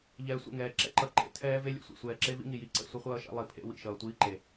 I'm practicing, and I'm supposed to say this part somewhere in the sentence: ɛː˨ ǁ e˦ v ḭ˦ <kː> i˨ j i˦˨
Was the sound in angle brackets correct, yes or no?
no